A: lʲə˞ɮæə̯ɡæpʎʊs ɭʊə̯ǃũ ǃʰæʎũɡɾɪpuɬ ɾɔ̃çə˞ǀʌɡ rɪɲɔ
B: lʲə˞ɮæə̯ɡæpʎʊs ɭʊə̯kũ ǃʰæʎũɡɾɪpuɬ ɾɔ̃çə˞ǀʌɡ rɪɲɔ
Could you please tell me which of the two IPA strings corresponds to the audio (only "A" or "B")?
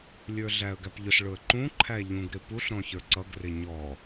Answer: A